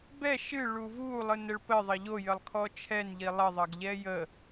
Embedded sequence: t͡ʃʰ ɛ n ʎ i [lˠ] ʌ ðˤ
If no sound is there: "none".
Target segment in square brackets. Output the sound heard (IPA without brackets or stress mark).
lˠ